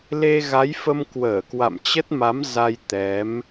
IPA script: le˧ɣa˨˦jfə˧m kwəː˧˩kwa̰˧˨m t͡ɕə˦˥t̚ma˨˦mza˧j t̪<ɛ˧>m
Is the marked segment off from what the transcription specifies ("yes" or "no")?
yes